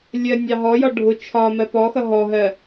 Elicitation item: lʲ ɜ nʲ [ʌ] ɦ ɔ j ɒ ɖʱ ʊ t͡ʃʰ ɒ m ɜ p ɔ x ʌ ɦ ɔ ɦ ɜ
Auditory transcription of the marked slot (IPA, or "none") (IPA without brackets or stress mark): ɑ